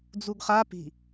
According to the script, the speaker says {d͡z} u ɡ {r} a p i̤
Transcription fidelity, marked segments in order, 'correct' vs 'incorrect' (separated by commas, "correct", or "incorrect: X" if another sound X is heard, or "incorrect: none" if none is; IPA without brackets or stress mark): correct, incorrect: χ